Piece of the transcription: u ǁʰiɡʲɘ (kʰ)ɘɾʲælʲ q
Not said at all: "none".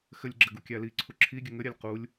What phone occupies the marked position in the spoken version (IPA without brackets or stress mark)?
ŋ